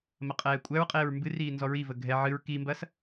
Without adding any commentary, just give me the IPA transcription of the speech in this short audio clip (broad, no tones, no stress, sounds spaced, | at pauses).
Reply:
m ɐ qʼ ɛː kʷʼ æ ɹ qʼ eː ɹ m b ɨ r iː n z ɔ ɹ i v ə ɡʱ ɛ ʕ ɨ ɹ k i m b ɐ s